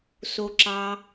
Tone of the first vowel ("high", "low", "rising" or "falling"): high